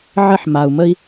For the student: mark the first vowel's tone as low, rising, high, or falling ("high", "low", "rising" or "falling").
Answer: high